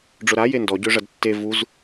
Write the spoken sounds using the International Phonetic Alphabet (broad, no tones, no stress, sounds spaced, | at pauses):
ɖ͡ʐ ʊ ɾ a j e n d ɔ ɟ ø ʐ ɐ d tː e v u z